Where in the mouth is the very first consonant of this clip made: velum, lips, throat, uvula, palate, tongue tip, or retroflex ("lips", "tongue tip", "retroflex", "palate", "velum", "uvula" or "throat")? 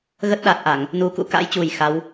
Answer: velum